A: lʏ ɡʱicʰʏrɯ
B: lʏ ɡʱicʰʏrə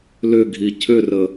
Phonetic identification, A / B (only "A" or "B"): B